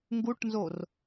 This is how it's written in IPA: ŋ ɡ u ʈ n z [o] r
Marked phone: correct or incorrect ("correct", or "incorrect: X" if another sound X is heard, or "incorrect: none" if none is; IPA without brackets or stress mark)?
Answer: correct